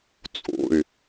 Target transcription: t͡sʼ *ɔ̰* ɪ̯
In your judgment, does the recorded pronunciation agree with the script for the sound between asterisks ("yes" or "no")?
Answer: no